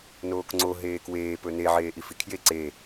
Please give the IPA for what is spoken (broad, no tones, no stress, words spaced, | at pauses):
noːkŋ͡ǀo ɦeːkweː pɵne ʕeːʔifikʰje ǀe